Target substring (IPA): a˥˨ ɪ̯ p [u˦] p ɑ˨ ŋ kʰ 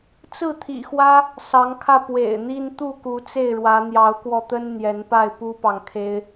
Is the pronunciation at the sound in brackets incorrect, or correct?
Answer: correct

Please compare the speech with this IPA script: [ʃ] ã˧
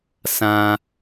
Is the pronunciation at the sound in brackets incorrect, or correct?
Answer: incorrect: s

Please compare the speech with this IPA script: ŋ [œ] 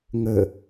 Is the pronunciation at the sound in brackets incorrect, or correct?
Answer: incorrect: ə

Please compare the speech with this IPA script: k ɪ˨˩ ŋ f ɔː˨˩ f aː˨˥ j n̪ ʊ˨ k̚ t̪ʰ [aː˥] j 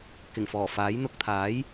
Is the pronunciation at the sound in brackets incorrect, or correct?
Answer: incorrect: aː˨˥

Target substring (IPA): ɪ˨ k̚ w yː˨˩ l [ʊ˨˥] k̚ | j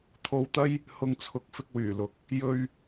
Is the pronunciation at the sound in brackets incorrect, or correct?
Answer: correct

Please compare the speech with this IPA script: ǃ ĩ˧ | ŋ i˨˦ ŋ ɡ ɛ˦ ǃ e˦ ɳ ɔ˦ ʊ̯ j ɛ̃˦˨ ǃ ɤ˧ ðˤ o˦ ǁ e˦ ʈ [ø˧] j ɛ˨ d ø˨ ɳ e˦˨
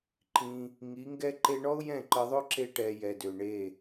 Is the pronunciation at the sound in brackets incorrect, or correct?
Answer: incorrect: ɛ˧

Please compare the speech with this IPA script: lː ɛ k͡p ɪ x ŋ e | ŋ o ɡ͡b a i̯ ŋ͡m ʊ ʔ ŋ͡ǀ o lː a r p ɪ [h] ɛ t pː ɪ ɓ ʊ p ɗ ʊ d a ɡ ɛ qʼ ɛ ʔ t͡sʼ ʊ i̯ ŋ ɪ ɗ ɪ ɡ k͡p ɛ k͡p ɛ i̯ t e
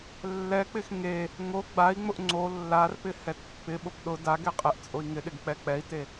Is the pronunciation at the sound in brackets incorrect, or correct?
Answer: correct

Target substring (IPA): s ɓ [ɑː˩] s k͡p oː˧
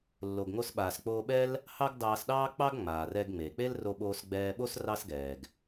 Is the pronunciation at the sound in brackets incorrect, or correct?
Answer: incorrect: aː˩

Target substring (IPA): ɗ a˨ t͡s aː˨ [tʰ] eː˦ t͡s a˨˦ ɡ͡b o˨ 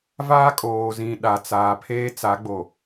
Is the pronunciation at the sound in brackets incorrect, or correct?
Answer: incorrect: pʰ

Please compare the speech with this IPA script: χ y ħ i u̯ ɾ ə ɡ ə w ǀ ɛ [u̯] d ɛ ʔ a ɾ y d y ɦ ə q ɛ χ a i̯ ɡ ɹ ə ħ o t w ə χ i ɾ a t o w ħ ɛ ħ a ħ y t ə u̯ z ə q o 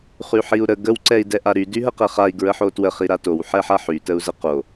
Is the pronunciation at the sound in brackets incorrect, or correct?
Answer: incorrect: i̯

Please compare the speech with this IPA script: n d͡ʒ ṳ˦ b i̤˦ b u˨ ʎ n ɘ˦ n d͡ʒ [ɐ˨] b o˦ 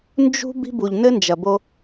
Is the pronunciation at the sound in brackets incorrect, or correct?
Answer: correct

